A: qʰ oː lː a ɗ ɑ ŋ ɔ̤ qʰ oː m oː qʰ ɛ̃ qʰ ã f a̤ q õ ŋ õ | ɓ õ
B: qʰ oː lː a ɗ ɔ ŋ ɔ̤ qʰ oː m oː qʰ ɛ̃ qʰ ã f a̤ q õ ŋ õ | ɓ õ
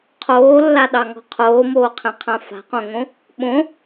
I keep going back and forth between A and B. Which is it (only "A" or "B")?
A